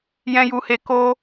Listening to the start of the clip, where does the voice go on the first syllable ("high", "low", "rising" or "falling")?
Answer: high